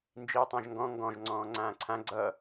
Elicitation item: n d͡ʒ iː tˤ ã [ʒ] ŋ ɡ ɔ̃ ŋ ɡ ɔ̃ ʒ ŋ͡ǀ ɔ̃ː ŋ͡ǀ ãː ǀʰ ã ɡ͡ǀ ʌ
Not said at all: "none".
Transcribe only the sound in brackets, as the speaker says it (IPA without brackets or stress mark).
ʒ